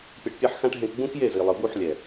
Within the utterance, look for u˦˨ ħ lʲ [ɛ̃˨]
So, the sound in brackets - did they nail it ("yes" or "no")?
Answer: no